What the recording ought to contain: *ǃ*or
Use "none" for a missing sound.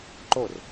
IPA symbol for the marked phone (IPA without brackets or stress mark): ǃ